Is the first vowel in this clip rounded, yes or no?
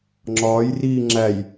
yes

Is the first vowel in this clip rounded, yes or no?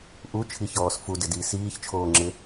yes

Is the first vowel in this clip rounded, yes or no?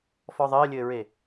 yes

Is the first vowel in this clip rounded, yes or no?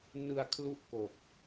no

